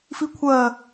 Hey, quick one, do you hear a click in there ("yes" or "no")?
no